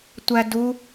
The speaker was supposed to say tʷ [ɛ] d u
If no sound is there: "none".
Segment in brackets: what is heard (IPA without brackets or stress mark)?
æ